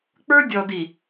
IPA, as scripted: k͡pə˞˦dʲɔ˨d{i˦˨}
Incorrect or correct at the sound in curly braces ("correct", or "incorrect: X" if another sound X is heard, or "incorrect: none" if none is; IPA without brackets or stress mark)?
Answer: incorrect: i˨